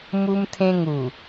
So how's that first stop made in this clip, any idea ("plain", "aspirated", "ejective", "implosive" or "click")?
aspirated